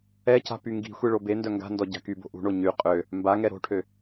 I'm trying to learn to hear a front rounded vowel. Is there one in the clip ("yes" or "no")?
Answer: yes